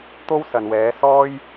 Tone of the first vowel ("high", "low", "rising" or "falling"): high